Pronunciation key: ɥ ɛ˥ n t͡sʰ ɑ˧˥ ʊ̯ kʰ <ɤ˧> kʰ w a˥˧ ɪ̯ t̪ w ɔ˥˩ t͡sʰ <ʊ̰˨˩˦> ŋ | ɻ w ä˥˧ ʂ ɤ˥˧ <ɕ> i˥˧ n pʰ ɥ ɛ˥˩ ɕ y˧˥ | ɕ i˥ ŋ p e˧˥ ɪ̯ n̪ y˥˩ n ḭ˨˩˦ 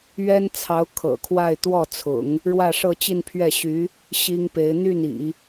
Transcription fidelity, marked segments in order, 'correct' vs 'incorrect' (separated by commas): incorrect, correct, incorrect